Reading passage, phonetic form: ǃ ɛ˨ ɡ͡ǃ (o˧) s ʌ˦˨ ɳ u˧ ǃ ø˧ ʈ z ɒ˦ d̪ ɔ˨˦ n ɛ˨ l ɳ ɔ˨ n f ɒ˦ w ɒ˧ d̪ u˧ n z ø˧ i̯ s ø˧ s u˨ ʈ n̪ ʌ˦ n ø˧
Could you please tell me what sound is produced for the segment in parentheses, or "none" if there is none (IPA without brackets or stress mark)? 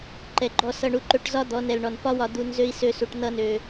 ɔ˧